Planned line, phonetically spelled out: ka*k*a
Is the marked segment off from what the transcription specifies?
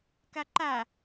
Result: yes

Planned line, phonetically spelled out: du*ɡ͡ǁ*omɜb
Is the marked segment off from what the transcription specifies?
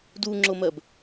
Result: yes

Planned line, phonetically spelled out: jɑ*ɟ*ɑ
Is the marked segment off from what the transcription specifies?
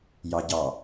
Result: no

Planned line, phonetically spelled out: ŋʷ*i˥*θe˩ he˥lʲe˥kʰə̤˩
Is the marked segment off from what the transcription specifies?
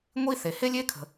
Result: no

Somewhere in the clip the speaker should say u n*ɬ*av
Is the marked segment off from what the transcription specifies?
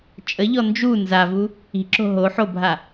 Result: yes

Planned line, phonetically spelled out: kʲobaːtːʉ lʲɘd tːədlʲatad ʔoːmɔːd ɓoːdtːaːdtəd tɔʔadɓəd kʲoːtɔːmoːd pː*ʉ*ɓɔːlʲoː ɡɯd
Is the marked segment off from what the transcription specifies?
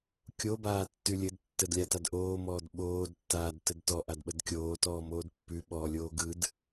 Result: no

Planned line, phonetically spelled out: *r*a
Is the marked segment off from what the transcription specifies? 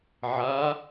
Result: yes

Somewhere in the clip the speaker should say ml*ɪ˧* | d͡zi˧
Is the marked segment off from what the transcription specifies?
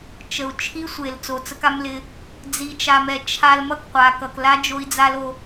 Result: no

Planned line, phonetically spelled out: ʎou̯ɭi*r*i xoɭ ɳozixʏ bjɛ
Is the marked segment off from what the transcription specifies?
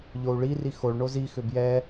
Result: no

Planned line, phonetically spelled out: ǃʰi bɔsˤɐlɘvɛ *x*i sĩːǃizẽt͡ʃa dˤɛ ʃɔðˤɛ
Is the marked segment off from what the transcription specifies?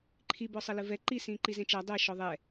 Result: yes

